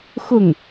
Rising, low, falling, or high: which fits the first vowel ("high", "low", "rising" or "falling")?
falling